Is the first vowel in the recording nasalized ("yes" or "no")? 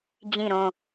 yes